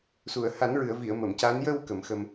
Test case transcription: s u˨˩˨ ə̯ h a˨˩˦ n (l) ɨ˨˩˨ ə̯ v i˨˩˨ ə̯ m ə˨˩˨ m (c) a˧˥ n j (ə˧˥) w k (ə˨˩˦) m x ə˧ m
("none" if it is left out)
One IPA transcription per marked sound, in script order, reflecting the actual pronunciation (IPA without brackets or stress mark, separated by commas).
ɹ, c, ə˧, ə˨˩˦